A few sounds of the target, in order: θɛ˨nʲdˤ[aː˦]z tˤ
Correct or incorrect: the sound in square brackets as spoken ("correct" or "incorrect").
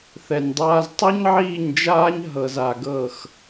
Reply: correct